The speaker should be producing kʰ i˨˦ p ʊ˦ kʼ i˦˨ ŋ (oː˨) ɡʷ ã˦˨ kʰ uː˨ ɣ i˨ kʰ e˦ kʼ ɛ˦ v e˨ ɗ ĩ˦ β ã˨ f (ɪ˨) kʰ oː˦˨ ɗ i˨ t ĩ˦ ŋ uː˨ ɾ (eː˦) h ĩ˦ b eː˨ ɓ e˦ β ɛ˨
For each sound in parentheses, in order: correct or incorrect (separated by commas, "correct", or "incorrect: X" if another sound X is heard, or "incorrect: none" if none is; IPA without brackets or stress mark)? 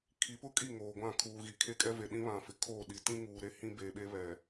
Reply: correct, correct, incorrect: e˦